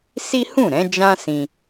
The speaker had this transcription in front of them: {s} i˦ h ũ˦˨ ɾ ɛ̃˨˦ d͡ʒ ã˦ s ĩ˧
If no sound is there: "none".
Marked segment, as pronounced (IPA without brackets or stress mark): s